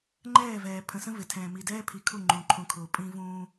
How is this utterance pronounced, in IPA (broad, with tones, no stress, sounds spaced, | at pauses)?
ŋ͡ǃ ɛː˦˨ v ɛː˨ pʰ ə̃˨ s ə̃˦ v ɪ˨ tʰ ɛ̃ː˨ m i˨ d ɛː˦ pʰ i˨ kʰ u˦˨ ŋ͡ǃ ũ˨ ǃʰ ũ˨ kʰ ʊː˨ pʼ ĩ˦ v ũː˦